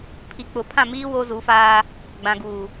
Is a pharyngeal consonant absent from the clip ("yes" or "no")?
yes